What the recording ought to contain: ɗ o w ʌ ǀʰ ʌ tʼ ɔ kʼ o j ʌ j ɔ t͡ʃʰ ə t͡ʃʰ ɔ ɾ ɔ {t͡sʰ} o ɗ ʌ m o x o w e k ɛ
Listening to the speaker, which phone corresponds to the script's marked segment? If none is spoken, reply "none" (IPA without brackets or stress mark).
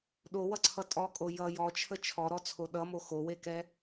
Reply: t͡sʰ